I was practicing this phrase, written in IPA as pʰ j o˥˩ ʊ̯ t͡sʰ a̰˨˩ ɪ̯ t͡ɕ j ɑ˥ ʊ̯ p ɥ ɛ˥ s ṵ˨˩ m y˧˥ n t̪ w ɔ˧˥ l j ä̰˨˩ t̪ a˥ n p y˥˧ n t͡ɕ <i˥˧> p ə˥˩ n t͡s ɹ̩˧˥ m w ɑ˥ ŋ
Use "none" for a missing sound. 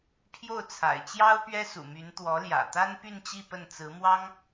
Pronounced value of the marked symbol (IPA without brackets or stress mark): i˥˧